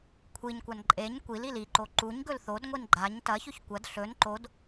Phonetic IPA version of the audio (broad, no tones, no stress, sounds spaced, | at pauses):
kʷʰ i ɲ kʷ a n ǃʼ e ɲ kʷ i l i l i ǃ o ǃ u ɲ ɡ ɵ l θ o d ŋʷ i n ɡ͡ǃ a ɲ t ɐ ç ɵ ç kʷ ɐ d ɬ ɵ n ǃ o d